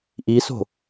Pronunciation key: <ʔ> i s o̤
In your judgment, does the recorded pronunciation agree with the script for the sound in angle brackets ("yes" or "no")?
yes